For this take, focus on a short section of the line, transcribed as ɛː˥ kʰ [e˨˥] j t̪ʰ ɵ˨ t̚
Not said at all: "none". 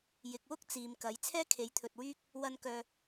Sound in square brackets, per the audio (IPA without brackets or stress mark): e˨˥